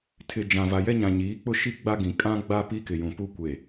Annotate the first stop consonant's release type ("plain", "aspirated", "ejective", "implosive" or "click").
aspirated